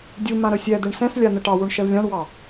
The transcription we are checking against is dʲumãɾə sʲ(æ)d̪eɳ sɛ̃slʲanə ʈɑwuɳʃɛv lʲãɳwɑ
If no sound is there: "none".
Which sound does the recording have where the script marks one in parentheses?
ɛ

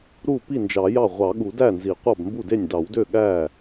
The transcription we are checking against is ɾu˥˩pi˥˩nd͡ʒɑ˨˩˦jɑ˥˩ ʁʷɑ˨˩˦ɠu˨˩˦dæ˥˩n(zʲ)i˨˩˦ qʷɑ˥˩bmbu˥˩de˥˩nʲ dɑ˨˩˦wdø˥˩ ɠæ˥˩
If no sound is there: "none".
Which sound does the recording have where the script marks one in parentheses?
z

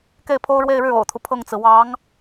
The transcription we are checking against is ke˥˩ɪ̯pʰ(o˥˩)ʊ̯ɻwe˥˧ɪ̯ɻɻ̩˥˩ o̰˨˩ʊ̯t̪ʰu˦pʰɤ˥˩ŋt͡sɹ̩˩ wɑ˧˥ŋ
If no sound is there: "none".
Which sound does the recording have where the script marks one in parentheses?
o˥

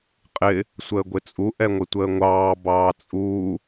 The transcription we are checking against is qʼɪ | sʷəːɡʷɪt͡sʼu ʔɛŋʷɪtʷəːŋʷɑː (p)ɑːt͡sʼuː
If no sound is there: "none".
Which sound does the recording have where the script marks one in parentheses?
b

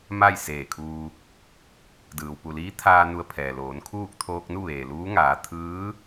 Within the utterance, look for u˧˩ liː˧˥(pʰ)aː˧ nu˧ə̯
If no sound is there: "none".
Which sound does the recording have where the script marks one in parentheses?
t̪ʰ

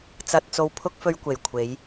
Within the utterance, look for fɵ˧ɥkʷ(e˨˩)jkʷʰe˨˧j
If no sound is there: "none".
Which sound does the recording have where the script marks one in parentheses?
e˨˩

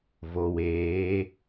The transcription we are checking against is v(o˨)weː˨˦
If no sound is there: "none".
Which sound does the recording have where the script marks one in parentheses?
o˨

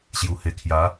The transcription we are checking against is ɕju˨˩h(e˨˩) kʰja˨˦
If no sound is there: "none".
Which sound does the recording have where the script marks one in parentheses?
e˨˩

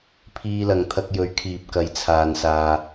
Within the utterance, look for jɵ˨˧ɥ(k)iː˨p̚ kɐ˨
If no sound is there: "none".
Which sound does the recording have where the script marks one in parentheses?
kʰ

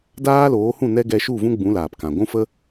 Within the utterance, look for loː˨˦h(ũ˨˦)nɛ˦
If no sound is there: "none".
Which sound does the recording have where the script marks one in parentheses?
ũ˦˨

